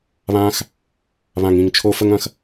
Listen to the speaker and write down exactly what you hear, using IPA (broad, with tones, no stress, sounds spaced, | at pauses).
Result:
β ãː˦ x | β ã˨ ŋ ĩ˨ ŋ t͡ʃʰ o˧ f ə˦ ŋ ɐ̃˦ x